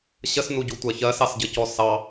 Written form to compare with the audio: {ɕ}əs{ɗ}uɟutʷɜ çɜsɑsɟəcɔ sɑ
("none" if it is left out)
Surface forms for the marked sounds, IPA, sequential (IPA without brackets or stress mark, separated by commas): ɕ, n